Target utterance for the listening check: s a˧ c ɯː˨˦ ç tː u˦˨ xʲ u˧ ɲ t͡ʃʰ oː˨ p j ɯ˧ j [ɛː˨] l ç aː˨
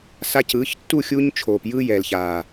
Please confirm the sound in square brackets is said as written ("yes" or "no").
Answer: yes